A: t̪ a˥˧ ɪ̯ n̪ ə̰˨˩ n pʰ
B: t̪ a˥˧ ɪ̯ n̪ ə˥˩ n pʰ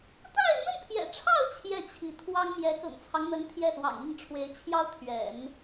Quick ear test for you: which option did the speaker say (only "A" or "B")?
B